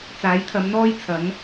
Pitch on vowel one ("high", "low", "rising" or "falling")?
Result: rising